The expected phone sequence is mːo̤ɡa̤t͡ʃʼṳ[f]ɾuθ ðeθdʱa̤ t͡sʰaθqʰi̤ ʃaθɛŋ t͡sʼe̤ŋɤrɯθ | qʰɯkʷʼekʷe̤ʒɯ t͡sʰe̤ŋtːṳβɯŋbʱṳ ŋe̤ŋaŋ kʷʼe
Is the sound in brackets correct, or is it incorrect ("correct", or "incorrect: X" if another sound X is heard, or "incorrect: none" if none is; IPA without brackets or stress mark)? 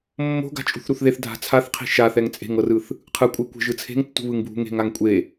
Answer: incorrect: θ